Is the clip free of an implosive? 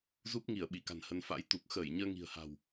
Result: no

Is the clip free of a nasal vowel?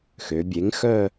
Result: yes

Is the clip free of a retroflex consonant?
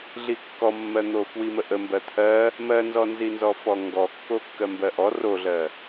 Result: yes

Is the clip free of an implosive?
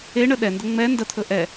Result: no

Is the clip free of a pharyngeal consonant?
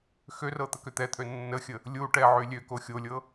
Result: no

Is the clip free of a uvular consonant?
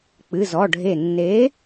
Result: yes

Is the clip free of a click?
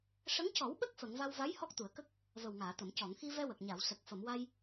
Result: yes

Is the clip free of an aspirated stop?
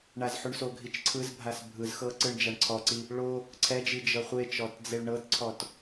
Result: no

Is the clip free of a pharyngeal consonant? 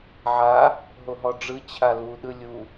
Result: no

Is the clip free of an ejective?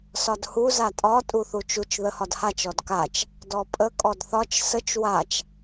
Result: no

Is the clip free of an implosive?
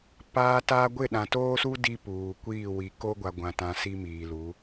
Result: no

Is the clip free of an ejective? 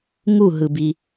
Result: yes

